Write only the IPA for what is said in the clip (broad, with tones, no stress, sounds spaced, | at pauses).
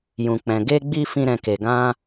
j ũ˨ k͡p ɛ̃˨ ɡ e˧ ɡ͡b i˧ f ĩ˧ ɾ ɛ̃˨ k e˨ ɡ ã˧